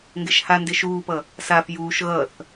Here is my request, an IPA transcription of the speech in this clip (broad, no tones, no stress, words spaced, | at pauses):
ŋɡeʃhande ʃuːpʌ | saf juːʃ ɣʌθ